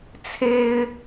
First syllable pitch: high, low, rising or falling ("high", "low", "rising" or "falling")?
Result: high